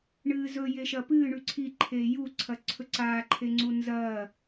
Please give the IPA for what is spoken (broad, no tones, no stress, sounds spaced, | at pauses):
ɳ ɨː z ɵ j e ʃ ɐ p ɨː ɳ ʉ ǀʰ i ǃʰ eː j u ǀʰ ɐ ǀʰ ɵ ǀ aː ǃʰ e ŋ͡ǀ u n z ɐː